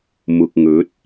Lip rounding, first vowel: rounded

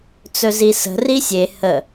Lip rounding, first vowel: rounded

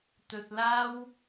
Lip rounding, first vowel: rounded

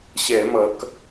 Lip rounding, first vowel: unrounded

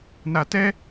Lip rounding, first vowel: unrounded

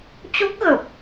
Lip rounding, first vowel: rounded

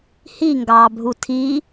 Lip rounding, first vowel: unrounded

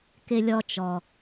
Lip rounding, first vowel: unrounded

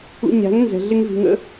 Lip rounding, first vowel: rounded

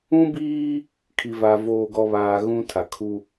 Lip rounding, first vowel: rounded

